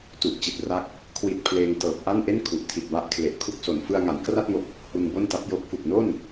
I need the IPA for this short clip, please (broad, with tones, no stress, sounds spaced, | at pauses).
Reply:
t u˨˩ ʔ t͡ɕ i˨˩ t̚ r a˥˩ k̚ | kʰ w i˨˩ t̚ pʰ l eː˧ ŋ t ɤː˨˩ p̚ ʔ a˥˩ n ʔ e˥˩ n kʰ u˨˩ ʔ tʰ i˨˩ t̚ b a˦˥ ʔ kʰ l e˨˩ ʔ kʰ u˥˩ k̚ s o˨˩ n f ɯ˧ a̯ ŋ a˩˦ n k r a˥˩ t̚ ŋ o˨˩ k̚ | h u˧ n b o˥˩ n t a˦˥ p̚ j o˦˥ k̚ f u˨˩ k̚ n o˥˩ n